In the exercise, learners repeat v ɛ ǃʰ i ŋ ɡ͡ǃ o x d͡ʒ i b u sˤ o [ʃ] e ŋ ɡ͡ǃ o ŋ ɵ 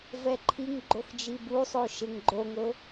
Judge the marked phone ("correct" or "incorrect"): correct